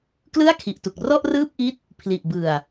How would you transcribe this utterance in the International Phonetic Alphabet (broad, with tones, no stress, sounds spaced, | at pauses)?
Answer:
k l ɯ˥˩ a̯ kʰ i˨˩ ʔ t u˨˩ k̚ r ɔ˥˩ ʔ r ɯː˥˩ p̚ ʔ i˦˥ t̚ | pʰ l i˨˩ ʔ b ɯ˨˩ a̯